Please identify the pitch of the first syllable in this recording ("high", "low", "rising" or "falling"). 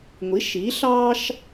rising